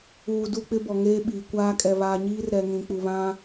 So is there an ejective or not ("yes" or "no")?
yes